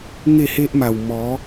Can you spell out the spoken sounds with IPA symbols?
ŋe˥˧he˦ʔma˨˩w mɔ˨˦

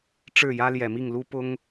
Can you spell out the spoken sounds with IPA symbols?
ʈ͡ʂɻ̩˥˩jä˥ljɛ˨˩mi˥˩ŋ lu˥pʊ˥ŋ

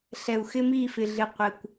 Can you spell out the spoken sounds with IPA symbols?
ɬɛ˨u̯xɪ˦mi˦˨fɪ˨ ɮɪ˧qʷɛ˨kʷ

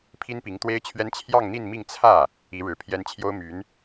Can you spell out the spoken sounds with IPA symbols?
pʰi˥npi˧˥ŋt̪we˥ɪ̯t͡ɕʰɥɛ˥n t͡ɕʰjɑ˥˧ŋn̪i˥˧nmi˥˧ŋ t͡sʰä˥˩ | i˧˥ɻɻ̩˨˩pʰjɛ˥n t͡ɕʰjo˥ʊ̯my˧˥n

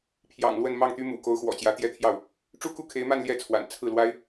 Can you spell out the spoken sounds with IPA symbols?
pʰjɑ̰˨˩ŋ lwə˥˧nmɑ˥˩ŋt̪y˥mṵ˨˩ ko˧˥ʊ̯xwɔ̰˨˩t͡ɕjä˧˥ t̪jɛ˥˧t̪ʰjɑ˥˩ʊ̯ | ʈ͡ʂu˥ku˥˩kʰe˧˥ɪ̯ma˥˧n ljɛ˥˩t͡sʰwa̰˨˩n t͡sʰɹ̩˥˩lwa˥ɪ̯

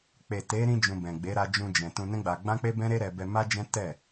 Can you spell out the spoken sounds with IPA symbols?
k͡pe˨ te˨˦ ɾĩ˧d͡ʒũ˨ bɛ̃˨ ɡ͡be˨˦ ɾa˧d͡ʒũ˧d͡ʒɛ̃˨ tũ˧nɛ̃˦ɡ͡ba˧ ɡ͡bã˦k͡pe˦bɛ̃˦ ɾe˦ɾɛ˧ bɛ˧ma˦d͡ʒɛ̃˦ tɛ˦˨

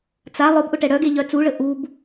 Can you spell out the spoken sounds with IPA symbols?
t͡sa lˠʊbʔʊ ʈɛɽœɡe ʎœt͡suɭə ʔub

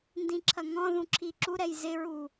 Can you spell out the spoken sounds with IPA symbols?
ndĩǁʰɐŋɔ̃ðũ ǁʰiǁuɾɛj zɪɹu

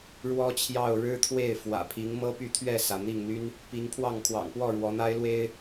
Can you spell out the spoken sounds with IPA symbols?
ɻwɔ˦t͡ɕʰjɑ˥˨ʊ̯ ɻɻ̩˦t̪ʰwe˥˨ɪ̯ fwä̰˨˩pʰi˨˦ŋ mɤ˦py˥˨ t̪ʰɥɛ˥˨sä˩ n̪i˥˨ŋn̪y˦n | pi˨˦ŋpʰwɑ˥˨ŋ kʰwɑ̰˨˩ŋpwɔ˥˨ ɻwɔ˨˦n̪a˦ɪ̯lwe˦ɪ̯

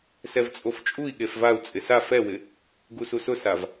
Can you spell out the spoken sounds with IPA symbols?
sɛvt͡sʼoft͡ʃʼui̯ ɠefvau̯ t͡sʼɪsa fɛwɪ | ɡususʊsav

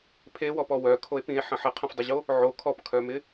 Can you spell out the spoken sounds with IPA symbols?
pʰewɔpɔ wœkʰoe̯ pĩe̯ħə̃ ħəqʰə̃fdˤɪʑo | ʕo kʰɔpkʰœmɪ

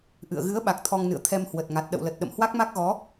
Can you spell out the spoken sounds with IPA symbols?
ʔɨ̰˧˨ə̯ ɣɨ˨˦ə̯ɓa˨˩k̚ t̪ʰɔ˧ŋnɨ̰˧˨ə̯ t̪ʰɛ˧mhwə˨˩t̚ŋa˨˩t̚ ɗə̰˧˨wlə˨˩t̚ɗə̰˧˨m hwa˦˥k̚ma˦˥k̚ɣɔ˨˦

